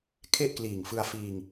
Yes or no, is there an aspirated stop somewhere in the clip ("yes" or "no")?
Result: yes